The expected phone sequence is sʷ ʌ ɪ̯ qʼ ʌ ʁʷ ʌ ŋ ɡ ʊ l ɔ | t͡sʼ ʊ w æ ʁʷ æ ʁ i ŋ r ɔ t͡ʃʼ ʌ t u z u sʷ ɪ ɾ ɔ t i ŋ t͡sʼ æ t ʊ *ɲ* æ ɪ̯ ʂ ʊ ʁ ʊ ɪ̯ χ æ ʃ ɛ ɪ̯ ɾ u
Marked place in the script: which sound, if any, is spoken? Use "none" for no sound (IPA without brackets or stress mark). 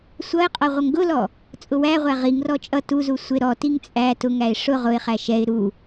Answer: ŋ